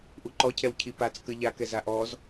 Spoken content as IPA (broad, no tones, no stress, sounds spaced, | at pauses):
ʔ u ǃ ɔ cʰ ɛ w cʰ i p a t͡s k ə ʎ a k ɛ z a ʔ ɔ z